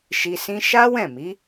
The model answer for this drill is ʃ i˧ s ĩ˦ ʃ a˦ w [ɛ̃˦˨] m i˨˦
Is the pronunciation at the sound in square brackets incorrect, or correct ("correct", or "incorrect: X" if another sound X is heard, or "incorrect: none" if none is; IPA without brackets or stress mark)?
correct